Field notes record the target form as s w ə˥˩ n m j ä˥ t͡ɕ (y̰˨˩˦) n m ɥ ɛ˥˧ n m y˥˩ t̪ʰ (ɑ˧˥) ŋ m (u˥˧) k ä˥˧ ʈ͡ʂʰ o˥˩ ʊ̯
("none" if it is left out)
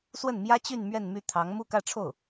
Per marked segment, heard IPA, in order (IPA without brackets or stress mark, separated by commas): y˥˧, ɑ˧˥, u˥˧